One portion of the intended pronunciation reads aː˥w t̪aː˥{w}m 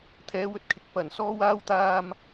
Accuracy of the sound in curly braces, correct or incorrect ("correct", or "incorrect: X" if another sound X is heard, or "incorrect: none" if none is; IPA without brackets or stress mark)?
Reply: incorrect: none